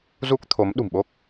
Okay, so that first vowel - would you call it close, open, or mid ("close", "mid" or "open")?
close